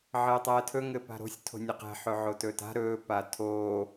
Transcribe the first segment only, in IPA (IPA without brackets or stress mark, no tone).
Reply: ʕ